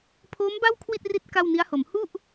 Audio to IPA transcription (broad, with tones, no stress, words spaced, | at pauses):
pʰoː˦˥mba˥˩w kʰwi˥˩t̚ri˦˥t̚ ka˥˩wni˦˥a̯ho˩˦m hu˥˩ʔ